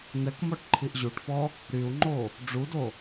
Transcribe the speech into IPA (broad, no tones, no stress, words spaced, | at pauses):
n̪ɛkmɔʈǃʰiʔ ʑuʈfɔ | ɾyu̯ŋ͡ǃo | ɖ͡ʐudo